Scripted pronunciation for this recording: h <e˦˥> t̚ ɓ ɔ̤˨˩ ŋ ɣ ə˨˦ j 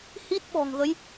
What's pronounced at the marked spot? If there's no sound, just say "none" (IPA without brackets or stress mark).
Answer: i˦˥